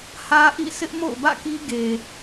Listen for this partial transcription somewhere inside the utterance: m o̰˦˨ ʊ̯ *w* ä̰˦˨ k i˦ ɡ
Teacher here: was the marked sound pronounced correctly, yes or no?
no